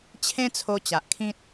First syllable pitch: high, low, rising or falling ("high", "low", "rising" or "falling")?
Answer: high